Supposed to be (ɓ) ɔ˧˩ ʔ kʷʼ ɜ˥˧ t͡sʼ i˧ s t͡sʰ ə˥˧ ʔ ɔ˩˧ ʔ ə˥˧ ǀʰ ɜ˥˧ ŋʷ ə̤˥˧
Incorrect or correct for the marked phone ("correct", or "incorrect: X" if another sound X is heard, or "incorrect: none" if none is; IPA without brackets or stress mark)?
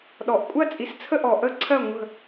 incorrect: ɗ